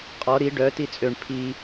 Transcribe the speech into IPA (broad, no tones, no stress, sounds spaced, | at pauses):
qʼ ɔ ɾ i ɖ œ t i t͡sʼ ø ɳ pʰ i